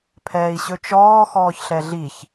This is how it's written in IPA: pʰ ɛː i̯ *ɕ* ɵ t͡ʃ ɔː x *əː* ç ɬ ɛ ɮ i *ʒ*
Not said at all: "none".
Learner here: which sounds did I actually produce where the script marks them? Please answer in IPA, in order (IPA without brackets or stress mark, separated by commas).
ɕ, ɔː, ç